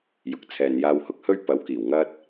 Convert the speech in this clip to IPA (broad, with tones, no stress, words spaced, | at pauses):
jʊ˨˥k̚ t͡sʰɛː˨njaː˧whʊ˥k̚hɵ˥ɥ pɐ˨˥w kiː˨˩w ŋɐ˥t̚